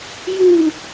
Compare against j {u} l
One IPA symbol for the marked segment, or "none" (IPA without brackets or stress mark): u